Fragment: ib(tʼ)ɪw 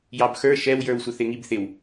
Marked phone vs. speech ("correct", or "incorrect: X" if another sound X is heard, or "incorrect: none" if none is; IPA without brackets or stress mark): incorrect: θ